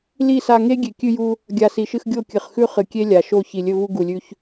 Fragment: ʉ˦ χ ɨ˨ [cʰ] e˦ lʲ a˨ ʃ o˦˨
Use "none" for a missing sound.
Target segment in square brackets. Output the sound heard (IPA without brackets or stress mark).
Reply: kʲ